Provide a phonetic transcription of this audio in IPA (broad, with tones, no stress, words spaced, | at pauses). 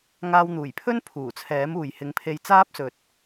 ŋaː˧wn̪uː˨˩jpʰɵ˥n pʰuː˨˩t͡sʰɛː˨˥muː˨j hɪ˨˧ŋpʰe˧j t͡saː˥p̚sɵ˨t̚